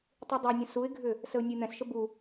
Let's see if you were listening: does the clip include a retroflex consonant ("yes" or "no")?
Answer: no